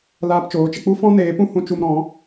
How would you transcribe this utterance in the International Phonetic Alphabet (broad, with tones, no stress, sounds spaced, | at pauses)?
l aː˧ p t͡ʃ oː˨˦ t͡ʃ ə˧ k͡p u˦ f ɔ̃˦ n eː˨˦ p ũ˦ h ũ˧ t͡ʃ u˧ m ɾ ɔ̃˨˦